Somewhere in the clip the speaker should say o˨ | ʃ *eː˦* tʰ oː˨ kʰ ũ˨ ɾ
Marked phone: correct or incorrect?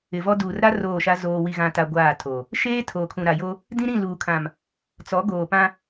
correct